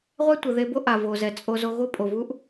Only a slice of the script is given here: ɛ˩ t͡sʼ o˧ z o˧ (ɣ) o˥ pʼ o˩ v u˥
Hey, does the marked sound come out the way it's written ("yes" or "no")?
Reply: yes